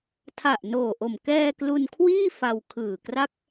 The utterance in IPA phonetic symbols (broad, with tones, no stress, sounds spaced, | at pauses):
tʰ a˨˩ ʔ n oː˨˩ ʔ o˨˩ m k ɛː˧ k l u˧ n kʰ w iː˥˩ f a˧ w kʰ ɯː˨˩ k r a˥˩ k̚